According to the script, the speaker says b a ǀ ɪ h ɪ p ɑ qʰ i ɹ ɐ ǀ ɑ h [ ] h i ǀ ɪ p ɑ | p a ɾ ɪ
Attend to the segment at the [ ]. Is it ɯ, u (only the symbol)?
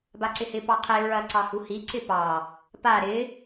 u